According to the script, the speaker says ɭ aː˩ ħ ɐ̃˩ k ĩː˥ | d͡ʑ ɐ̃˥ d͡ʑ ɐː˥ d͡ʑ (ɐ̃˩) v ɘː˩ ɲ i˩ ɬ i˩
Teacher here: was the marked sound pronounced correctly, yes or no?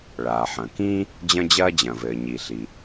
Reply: yes